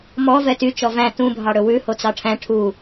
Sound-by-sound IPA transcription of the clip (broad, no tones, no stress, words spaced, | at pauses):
mɔ vɛty t͡ʃɔvæ̃ tũ bʱɑɽɵwʉ hot͡sɑʈʰæ̃ ʈʰu